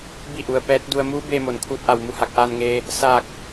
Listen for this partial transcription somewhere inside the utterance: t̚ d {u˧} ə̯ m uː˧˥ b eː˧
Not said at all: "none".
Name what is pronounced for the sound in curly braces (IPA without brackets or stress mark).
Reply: u˧